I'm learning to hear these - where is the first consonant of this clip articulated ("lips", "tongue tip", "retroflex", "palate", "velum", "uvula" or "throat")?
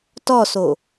tongue tip